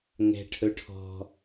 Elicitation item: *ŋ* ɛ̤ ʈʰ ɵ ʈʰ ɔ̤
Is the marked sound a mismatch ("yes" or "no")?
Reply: no